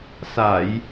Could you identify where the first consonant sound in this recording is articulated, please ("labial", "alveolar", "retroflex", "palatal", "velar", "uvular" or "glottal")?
alveolar